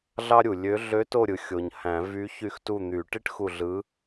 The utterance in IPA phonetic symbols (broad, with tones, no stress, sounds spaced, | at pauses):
ɮ ɑ˥ ɾʲ u˨ lʲ ø˧˥ ɮ ø˧˥ t o˦˨ ɾʲ ɯ˨ xʲ o˨ ɲ h æ̃˨˩˦ v y˧˥ ç y˦˨ x t u˦˨ n̪ y˨˩˦ ʈ i˥ ʈ x u˦˨ ɮ ɯ˧˥